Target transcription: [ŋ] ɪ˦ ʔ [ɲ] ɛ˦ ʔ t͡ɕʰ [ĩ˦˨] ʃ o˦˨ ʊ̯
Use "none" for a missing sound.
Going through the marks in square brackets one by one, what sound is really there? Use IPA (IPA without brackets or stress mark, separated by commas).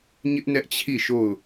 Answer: ɲ, n, i˦˨